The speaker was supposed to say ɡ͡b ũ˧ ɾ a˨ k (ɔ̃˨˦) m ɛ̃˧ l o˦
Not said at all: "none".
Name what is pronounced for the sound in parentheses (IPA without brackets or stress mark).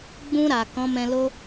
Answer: ɔ̃˨˦